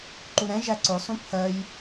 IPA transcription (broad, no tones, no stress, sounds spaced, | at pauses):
ǃ u ɾ ɛ̃ ʒ æ ǀ ʊ sˤ ũ pʰ ɜ j